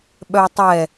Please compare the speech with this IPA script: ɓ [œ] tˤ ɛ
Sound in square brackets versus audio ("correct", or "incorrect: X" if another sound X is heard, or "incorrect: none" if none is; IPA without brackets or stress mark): correct